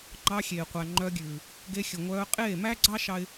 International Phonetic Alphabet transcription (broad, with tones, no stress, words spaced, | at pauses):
ŋ͡ǃɑ˧ xʲeː˨qʷæ˨ ŋ͡ǃœ˧ɡʲʉː˨ | ɡe˧xʲɵ˨ŋʷœː˧ qʼeː˦˨mæ˦ɡ͡ǀɑ˦ ʃɑ˦ɪ̯